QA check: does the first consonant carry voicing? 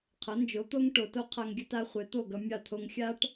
no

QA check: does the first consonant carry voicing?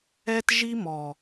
no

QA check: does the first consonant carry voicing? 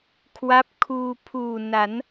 no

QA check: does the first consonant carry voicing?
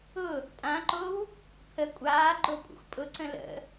no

